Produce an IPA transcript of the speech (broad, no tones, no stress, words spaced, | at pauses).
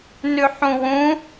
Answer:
nʉħũwũ